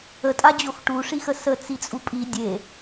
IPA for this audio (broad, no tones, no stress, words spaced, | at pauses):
ətʼad͡ʑox ʈuʂixə sət͡sit͡sʼu pʼi dʲe